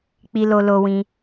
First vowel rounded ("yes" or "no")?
no